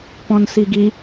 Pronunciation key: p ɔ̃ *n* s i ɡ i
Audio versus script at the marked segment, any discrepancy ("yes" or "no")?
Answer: no